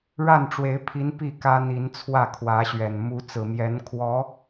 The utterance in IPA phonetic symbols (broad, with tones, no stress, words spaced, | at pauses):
ɻa˥˩nʈ͡ʂwe˧˥ɪ̯pʰi˧˥n pi˥˩kä˥ n̪i˧˥nt͡sʰwä˥˩kʰwä˧˥ɕɥɛ˨˩n mu˧˥t͡sɹ̩˨˩mjɛ˧˥n kʰwɔ˧˥